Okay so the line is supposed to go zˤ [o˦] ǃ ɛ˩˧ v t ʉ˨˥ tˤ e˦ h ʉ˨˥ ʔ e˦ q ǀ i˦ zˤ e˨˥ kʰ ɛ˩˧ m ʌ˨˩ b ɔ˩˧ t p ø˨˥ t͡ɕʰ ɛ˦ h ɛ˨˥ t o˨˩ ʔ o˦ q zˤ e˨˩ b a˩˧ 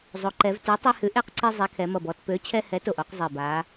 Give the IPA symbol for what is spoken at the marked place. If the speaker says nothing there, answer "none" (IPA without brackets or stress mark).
o˩˧